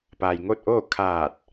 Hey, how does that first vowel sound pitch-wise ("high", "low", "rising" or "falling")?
low